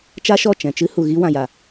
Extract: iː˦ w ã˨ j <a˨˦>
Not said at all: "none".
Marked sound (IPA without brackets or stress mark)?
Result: a˨